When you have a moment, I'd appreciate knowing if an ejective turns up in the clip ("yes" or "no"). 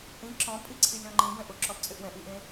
yes